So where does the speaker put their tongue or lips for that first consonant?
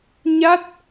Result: palate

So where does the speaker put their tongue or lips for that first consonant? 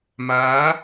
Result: lips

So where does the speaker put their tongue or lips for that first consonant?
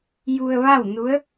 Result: palate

